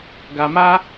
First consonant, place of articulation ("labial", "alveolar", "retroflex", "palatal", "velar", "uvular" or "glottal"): velar